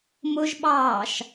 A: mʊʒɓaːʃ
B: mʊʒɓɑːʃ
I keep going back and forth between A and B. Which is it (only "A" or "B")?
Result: B